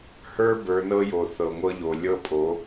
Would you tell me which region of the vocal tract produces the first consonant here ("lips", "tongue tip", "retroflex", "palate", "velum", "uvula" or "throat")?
throat